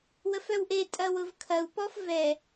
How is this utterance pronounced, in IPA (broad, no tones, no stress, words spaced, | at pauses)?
wəfœwʔetʼɐ wʊvkʰɐu̯pɔf vɛ